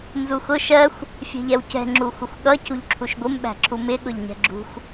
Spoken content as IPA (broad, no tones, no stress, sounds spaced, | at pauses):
n z u x ʊ ʃ ɜ xʷ | fʲ ɛ̤ ʎ ɛ w c ɛ̤ ŋ͡ǁ u xʷ ɪ xʷ ɠ ʌ cʰ u ʎ ǁʰ u ʃ ɡʷ ɪ m ɓ æ̤ ǁʰ u m ɪ ɠ ʊ ʎ ɲ ɛ̤ ɡ͡ǁ ṳ xʷ